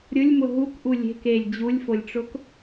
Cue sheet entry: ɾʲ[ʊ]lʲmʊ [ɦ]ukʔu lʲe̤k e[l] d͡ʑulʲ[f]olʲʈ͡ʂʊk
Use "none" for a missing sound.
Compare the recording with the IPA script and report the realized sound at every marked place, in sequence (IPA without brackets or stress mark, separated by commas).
ʊ, ɦ, lʲ, f